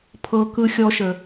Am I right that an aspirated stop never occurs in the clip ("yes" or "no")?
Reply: no